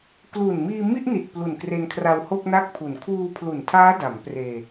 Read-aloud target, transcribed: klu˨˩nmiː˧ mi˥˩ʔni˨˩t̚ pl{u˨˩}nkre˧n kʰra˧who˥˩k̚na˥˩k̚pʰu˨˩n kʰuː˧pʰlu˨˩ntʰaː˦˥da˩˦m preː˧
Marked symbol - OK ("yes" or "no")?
yes